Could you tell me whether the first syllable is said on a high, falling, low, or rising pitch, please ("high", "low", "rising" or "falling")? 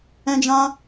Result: high